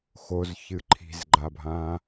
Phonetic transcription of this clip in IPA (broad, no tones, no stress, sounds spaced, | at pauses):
x o z ç ɨ ǃʰ i̤ z ɡ͡ǃ a bʱ ã